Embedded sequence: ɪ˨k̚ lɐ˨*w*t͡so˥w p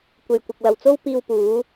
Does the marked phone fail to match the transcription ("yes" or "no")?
no